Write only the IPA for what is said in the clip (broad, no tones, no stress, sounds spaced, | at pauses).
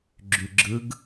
ɡ͡ǁ y ɡ͡ǁ ɯ ɡ